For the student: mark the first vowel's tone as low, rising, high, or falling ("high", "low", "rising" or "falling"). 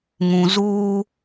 low